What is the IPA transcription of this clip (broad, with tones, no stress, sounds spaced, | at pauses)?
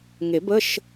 ŋ e˨˩˦ b ə˧˥˧ ʃ